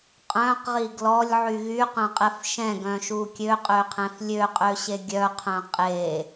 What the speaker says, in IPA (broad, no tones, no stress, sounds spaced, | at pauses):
qʼ œ̃ q ʁ i ɡ l ɔ lʲ ʕ y ɣ y q œ̃ qʼ ɛ f ʃ ɛ̃ ɡ œ̃ ʃ u kʲ ø qʼ ø qʰ ɛ̃ f lʲ ø qʼ ø ɕ e ɡʲ œ qʰ œ̃ qʼ e